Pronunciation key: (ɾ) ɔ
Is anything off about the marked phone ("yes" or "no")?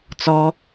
yes